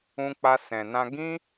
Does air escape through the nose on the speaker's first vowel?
yes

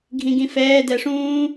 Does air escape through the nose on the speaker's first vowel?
yes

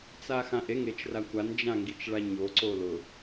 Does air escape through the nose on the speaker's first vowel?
no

